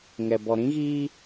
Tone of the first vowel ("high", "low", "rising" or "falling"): low